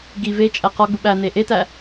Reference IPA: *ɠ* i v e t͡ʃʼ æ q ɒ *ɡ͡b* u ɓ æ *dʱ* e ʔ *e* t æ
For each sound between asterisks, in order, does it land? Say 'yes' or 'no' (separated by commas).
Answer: no, yes, no, yes